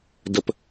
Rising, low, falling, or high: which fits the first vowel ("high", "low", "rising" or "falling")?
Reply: low